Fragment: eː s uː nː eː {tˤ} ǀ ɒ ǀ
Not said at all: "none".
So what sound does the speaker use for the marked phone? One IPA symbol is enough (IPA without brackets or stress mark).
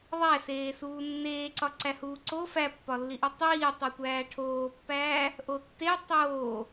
none